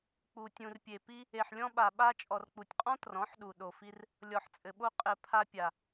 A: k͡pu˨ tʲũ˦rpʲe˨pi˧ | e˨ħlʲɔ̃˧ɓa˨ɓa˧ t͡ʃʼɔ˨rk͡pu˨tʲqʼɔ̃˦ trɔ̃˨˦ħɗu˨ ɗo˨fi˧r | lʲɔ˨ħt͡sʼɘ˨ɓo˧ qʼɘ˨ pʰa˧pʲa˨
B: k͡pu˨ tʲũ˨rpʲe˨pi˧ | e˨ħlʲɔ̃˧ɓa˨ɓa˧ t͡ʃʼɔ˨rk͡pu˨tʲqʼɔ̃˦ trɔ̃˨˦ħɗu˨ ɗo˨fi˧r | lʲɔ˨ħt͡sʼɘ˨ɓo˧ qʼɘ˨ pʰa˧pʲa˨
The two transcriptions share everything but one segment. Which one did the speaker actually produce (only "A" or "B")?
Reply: B